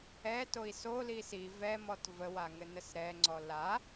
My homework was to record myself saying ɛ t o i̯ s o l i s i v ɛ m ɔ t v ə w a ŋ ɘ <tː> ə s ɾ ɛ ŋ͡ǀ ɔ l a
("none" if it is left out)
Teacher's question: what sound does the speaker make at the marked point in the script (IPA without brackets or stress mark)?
n